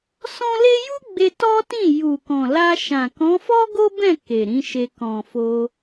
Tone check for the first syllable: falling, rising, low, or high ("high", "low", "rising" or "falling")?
high